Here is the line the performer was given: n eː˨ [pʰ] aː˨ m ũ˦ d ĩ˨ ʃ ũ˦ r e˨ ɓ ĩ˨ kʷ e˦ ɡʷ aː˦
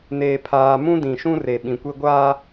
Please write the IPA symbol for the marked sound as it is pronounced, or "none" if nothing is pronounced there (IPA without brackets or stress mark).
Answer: pʰ